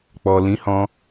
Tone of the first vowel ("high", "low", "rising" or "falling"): low